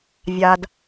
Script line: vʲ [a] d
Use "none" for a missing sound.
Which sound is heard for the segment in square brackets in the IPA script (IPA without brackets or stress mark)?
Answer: a